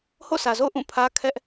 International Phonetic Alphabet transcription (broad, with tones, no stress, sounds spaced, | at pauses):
h o̰˦˨ sʰ ä˨ z o̰˦˨ ʊ̯ ʔ ũ˦˨ pʰ ä˦ kʰ ɛ˦ ʔ